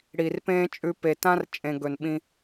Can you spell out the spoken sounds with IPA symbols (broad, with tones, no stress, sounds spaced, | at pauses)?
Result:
ɽ i˨ r p ẽː˦ t͡ʃʼ ʉ˧ p e˨ t ã˦ r t͡ʃʼ ẽ˨ ɡ ɵ˨ n ɓ ĩ˧